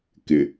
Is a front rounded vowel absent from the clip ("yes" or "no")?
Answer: yes